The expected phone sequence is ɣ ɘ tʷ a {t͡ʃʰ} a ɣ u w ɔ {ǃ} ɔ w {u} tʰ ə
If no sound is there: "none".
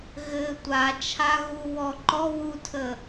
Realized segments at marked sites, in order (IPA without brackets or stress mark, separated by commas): t͡ʃʰ, ǃ, u